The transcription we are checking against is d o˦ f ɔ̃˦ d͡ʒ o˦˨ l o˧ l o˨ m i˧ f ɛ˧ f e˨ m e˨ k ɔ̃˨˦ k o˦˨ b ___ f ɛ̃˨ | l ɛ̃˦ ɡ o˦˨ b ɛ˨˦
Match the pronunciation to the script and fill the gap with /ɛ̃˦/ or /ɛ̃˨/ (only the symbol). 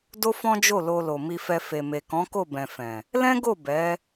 ɛ̃˨